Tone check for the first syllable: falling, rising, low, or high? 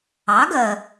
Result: rising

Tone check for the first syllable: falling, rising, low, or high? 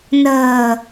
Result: low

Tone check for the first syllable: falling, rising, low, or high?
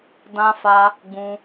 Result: high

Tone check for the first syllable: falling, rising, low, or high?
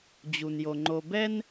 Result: low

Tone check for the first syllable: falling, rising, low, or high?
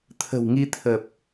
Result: low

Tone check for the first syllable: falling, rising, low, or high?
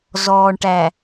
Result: low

